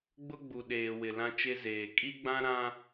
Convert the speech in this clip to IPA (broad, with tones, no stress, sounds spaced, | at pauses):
ɡ͡b ʊ˦ ɡ͡b u˨ ɗ eː˨ w ɪ˨ l ã˦ t͡ʃ e˦ z eː˨ kʼ i˦ ɡ͡b ã˦ ɾ ã˦